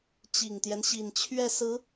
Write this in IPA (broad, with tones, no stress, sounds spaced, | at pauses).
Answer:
t͡ɕ i˨˩ ŋ t̪ j ɛ˦ n ɕ i˨˩ n t͡ɕʰ ɥ ɛ˥˩ s ɹ̩˧˥